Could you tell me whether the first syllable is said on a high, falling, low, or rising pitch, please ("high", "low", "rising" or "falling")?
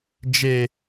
low